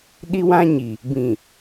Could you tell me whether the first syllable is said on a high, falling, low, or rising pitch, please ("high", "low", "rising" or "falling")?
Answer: high